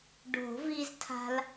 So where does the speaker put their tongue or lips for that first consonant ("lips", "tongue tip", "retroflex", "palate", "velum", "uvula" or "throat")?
retroflex